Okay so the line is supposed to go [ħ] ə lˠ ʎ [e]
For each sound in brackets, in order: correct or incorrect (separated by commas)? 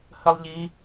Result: incorrect, incorrect